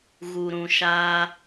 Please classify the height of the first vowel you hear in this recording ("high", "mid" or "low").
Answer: high